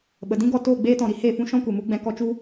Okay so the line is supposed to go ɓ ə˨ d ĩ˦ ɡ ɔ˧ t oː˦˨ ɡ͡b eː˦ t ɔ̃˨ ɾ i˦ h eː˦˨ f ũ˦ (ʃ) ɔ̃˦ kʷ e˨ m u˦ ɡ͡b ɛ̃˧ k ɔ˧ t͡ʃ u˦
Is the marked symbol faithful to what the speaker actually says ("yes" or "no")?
yes